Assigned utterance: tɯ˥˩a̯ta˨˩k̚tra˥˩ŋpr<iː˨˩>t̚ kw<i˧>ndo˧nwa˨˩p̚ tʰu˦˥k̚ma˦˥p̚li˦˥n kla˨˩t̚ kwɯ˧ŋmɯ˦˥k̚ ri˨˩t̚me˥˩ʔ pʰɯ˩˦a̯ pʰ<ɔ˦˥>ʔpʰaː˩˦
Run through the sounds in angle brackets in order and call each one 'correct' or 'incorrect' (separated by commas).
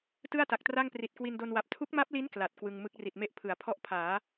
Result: incorrect, correct, correct